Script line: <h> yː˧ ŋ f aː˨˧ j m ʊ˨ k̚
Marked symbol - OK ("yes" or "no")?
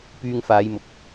no